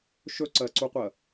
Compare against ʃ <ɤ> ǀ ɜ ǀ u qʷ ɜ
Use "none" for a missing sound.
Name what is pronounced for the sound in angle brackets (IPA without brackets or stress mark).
ɵ